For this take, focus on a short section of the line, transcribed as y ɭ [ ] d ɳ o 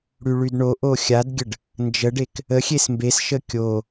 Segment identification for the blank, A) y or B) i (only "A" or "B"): A